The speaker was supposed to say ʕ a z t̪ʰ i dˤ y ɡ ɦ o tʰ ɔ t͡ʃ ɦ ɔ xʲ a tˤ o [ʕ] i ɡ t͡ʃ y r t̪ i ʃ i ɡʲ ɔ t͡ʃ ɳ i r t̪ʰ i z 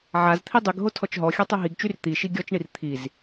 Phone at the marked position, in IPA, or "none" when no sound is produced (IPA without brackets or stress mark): ɦ